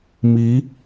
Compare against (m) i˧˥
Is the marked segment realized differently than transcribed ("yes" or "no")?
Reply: no